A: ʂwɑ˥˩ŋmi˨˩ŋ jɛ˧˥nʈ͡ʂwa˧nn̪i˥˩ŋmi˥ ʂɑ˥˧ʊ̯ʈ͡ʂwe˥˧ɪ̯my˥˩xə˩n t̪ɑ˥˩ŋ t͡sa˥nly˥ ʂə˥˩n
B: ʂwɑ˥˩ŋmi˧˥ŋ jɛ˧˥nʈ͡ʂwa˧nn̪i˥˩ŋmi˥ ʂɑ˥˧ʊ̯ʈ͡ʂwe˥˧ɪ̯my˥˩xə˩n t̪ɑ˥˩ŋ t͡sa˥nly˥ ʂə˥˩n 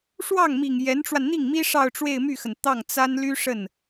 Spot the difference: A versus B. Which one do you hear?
A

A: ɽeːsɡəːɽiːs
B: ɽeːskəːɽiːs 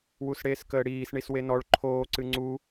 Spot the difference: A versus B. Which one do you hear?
B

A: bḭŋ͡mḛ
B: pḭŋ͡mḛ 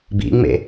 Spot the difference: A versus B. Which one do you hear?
A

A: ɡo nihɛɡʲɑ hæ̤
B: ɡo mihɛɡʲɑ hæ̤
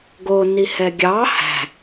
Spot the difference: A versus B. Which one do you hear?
A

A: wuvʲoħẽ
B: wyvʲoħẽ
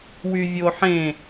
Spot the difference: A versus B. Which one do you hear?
B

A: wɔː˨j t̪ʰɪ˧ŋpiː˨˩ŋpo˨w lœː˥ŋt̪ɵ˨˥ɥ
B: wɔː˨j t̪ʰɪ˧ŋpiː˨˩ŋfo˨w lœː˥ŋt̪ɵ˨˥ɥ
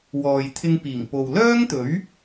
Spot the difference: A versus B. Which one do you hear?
A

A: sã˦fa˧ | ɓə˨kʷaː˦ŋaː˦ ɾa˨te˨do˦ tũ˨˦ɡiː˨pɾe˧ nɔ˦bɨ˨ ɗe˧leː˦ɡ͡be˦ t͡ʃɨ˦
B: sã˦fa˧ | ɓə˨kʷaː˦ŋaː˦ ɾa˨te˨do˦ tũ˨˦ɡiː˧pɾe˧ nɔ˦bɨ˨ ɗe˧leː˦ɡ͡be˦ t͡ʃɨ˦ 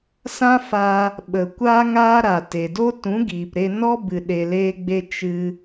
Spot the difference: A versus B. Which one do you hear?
A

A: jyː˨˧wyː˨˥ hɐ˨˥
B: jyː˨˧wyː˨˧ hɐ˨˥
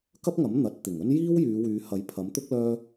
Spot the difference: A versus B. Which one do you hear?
B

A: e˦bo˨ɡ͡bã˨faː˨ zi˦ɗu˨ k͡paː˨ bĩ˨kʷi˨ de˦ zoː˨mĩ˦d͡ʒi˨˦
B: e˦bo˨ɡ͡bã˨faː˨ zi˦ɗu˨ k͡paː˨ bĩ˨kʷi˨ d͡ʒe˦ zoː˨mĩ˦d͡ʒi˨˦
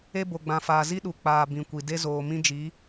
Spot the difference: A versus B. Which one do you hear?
A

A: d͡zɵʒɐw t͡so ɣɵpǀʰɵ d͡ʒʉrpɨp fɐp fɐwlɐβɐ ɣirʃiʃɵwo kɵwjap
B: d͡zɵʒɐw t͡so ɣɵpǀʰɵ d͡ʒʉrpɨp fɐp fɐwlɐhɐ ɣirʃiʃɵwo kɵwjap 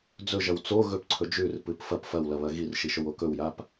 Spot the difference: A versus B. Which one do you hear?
A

